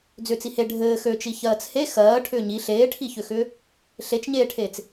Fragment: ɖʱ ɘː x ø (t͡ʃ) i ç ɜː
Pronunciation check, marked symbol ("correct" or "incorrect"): correct